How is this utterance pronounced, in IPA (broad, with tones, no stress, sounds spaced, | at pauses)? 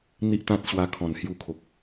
n̪ i˦ ʔ t̪ ã˦ t̚ ɕ w a˧ kʰ ɔ̃˨˩ n h j u˧ kʰ o˨ k̚